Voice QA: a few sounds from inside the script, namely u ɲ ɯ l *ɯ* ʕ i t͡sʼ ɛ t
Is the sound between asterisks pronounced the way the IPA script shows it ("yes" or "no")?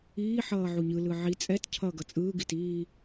yes